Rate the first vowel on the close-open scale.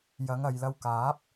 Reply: open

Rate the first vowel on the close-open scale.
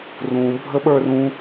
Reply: close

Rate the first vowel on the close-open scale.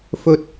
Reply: mid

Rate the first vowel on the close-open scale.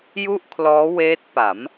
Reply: close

